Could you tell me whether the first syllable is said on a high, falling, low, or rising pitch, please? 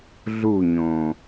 falling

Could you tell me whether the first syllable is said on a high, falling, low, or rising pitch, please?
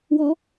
rising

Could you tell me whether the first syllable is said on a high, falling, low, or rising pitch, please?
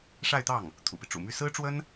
falling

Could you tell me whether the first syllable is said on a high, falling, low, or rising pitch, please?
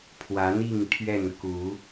rising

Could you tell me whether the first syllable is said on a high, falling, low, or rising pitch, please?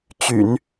low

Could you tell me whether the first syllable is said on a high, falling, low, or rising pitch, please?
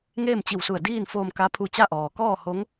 falling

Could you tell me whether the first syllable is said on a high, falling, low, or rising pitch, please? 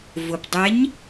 low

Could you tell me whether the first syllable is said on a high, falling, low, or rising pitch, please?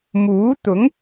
rising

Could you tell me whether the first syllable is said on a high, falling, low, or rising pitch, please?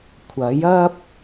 rising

